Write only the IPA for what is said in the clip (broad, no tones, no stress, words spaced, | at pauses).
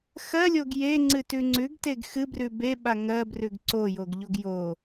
xɜlʲoɡ jeŋ͡ǀɨtʉ ŋ͡ǀʉɡteɡ xɨbrʉ beɓa ŋɜbrʉɡ ǀojoɡʎoɡ jo